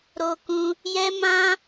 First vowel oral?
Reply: yes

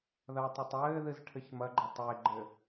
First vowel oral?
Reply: yes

